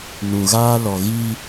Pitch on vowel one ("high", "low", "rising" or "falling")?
low